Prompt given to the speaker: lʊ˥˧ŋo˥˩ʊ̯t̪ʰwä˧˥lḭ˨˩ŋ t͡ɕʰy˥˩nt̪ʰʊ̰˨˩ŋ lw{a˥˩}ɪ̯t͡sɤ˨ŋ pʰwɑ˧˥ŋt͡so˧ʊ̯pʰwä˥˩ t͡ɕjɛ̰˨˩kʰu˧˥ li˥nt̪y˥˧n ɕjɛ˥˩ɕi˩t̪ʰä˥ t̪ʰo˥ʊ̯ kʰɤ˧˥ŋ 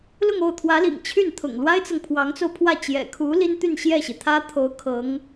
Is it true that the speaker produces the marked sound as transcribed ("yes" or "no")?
no